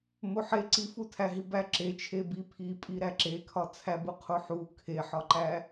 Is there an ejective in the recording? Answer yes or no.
yes